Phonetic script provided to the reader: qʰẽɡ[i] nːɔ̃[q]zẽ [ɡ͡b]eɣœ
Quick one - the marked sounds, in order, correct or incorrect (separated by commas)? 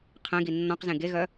correct, correct, incorrect